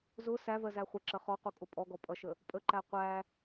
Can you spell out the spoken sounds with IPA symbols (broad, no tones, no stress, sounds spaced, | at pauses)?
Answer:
z ʊ s æ v ɜ z æ χʷ ɪ ǁ ə χ ɔ q u kʼ ʊ pʼ ɔ ɡ ɔ pʼ ʌ ʃ ə | pʼ ə ǃ æ qʷ æ